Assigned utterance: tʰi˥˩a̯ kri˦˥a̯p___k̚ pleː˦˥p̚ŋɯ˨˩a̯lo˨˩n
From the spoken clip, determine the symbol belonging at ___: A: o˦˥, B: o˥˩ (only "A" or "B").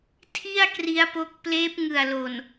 A